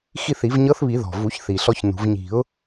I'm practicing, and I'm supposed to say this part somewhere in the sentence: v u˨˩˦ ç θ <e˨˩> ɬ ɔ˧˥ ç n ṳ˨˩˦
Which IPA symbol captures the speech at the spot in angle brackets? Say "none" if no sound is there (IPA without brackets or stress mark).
i˨˩